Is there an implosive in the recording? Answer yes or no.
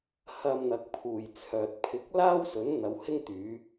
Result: no